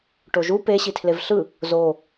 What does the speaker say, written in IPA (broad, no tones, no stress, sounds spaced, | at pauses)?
ʈ o ʒ u p e ɕ i tʰ l e v ɬ ɯ | z o